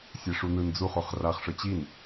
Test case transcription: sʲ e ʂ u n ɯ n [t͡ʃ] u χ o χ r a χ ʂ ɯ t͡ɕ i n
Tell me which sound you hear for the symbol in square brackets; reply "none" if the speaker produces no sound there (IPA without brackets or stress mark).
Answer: d͡z